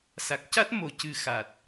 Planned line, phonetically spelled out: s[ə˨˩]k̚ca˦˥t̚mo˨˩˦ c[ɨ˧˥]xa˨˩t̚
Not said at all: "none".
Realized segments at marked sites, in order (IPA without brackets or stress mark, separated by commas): a˨˩, ɨ˨˩